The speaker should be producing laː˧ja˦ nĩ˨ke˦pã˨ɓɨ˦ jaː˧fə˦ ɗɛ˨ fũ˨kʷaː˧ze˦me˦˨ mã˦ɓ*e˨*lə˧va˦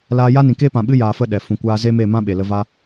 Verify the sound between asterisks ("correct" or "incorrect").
correct